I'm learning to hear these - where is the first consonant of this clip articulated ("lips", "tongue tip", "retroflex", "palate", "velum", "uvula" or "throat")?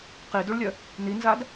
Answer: uvula